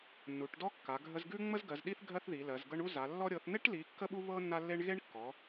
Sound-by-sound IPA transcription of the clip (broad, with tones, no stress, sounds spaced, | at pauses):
nː u˨˦ ʈ d ɔ˥ kː a˨˦ ɡʱ ə˥ z ɡ ʉ˥ ŋ͡m ə˥ z ɡ ɜ˨˦ z ɗ i˥ θ ɡʱ ɜ˥ θ ð i˨˦ l ɜ˨˦ z ɡ ɤ˥ ɳ u˥ z a˨˦ lː ɔ˥ ɾʲ ɤ˨˦ θ n̪ e˥ ʈ l i˨˦ kː ə˥ ɓ u˥ β ɤ˥ nː a˥ lː e˥ ɳ ɣ e˥ ɳ kː ɔ˨˦